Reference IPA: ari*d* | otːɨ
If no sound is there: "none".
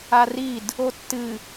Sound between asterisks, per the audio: d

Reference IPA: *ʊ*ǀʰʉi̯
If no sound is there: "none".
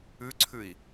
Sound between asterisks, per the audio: ʉ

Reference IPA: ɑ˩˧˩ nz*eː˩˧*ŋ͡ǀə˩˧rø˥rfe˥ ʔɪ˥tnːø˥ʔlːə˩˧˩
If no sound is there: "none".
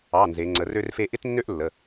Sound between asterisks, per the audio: e˩˧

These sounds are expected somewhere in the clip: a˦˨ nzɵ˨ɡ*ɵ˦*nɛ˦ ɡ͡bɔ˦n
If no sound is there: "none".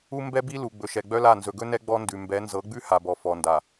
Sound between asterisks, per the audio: ɵ˦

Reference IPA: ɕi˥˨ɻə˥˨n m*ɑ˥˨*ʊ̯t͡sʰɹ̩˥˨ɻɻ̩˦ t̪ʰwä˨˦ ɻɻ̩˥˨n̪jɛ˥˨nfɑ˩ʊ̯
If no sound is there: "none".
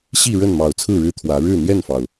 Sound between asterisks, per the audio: ɑ˨˩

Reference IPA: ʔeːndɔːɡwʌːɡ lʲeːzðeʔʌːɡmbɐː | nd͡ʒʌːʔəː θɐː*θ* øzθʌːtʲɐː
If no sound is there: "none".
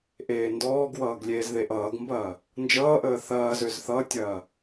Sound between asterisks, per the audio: z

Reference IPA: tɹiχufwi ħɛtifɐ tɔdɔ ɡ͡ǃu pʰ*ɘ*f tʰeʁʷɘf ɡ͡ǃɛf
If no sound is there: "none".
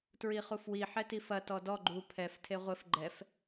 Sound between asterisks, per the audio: ɛ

